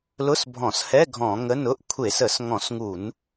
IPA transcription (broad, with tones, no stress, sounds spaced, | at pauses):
l ʊ˧˥˧ s bʱ ɔ̃˧˩˧ s h ɛ˧˥˧ ɡʱ ɔ̃˧˩˧ ŋ ə˧˥˧ n ʊ˧˥˧ ʔ kʷʰ e˧˩˧ s ə˧˩˧ s ŋ ɔ̃˧˩˧ s ŋ u˧˩˧ n